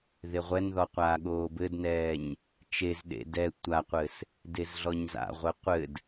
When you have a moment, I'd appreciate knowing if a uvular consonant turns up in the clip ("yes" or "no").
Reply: yes